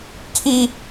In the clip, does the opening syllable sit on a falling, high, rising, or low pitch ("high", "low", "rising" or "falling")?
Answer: high